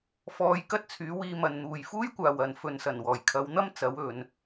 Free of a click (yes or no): yes